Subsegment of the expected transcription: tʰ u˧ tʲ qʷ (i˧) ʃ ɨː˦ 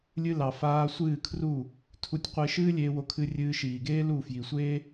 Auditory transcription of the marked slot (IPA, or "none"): e˧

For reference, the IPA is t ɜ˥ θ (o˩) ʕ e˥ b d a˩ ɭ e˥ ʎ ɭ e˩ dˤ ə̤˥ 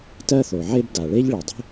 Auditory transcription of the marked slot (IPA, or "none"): o˩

